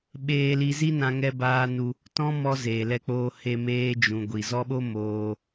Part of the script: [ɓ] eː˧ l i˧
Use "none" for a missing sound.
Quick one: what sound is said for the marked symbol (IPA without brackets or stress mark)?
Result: ɓ